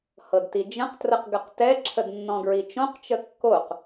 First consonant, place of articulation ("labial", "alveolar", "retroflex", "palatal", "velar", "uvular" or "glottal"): glottal